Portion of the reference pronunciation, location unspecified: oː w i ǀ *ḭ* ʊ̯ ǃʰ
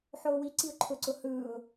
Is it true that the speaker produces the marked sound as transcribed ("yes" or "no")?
no